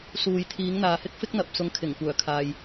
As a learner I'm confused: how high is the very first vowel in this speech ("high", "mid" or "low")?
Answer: high